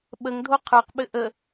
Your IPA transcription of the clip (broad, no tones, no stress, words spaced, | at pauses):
ɓəŋdʱo qʰə˞qɓɘ ʔə